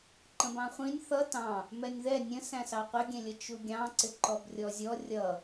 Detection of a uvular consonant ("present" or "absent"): present